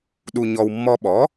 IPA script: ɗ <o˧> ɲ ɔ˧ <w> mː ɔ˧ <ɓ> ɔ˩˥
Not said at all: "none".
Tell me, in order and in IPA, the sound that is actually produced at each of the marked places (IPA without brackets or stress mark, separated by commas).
u˧, w, ɓ